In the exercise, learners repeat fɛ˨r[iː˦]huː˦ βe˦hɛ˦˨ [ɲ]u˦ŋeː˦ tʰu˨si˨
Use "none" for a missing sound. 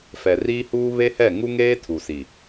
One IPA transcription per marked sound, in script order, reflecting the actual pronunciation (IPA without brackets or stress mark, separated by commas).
iː˦, ŋ